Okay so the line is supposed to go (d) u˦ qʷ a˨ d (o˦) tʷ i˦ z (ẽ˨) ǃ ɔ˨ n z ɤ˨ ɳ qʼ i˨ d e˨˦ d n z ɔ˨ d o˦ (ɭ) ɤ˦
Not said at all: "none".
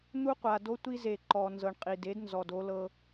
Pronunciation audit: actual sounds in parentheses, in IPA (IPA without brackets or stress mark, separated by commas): n̪, o˦, e˨, l